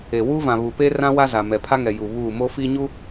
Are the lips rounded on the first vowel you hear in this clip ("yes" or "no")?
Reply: no